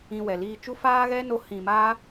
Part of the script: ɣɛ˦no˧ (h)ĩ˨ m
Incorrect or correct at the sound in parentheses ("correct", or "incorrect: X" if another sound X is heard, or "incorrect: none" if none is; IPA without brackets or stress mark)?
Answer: correct